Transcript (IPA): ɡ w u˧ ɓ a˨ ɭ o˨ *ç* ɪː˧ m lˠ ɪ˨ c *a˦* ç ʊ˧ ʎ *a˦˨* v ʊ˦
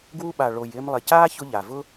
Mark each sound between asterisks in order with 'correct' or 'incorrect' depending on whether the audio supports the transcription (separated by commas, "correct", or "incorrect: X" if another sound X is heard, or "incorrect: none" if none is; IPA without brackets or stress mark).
incorrect: j, incorrect: aː˦, incorrect: a˨